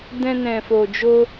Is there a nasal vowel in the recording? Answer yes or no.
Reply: yes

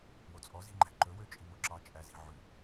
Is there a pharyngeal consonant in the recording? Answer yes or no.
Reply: yes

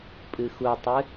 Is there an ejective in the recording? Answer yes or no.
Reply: yes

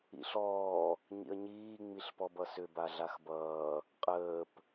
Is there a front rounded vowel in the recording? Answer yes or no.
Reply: yes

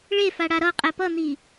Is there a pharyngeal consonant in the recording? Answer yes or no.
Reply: no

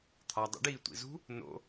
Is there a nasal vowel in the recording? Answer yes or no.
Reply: no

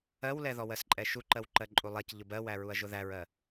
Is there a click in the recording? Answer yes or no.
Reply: yes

